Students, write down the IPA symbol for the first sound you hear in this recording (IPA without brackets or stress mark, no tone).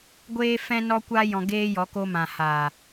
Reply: ɡʷ